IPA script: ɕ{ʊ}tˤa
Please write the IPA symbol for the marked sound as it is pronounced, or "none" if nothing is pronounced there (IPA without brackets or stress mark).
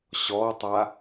ɔ